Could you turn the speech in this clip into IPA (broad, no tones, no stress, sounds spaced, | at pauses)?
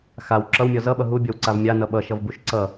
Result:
x a w ǁ ʌ w mʲ ɔ z ʌ ɓ ʌ ɦ u bʲ ɔ w ǀ a v mʲ a n ʌ ɓ ʌ ʃ ʌ v b u ʃ ǀ ʌ